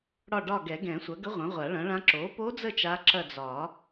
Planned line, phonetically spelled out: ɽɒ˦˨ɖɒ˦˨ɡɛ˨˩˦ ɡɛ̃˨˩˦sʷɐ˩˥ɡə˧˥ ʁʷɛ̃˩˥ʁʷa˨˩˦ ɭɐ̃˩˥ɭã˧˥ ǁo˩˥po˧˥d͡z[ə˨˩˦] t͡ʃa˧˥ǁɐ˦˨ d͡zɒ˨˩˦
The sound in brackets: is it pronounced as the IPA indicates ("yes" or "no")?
no